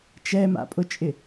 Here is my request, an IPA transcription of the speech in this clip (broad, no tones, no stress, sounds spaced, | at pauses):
t͡ʃ ɛ m a̰ pʼ ʊ t͡ʃʼ ɪ